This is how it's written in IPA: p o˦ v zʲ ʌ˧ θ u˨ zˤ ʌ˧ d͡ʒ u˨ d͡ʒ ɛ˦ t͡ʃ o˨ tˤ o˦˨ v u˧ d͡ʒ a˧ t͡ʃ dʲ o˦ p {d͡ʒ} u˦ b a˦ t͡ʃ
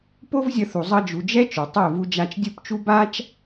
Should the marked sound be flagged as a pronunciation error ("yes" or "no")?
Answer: yes